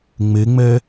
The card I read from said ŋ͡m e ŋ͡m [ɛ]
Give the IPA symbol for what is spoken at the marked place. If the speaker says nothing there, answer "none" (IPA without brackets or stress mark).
ɛ